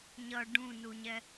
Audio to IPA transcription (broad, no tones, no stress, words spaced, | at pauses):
ɲʌ ɖũnuɲɛ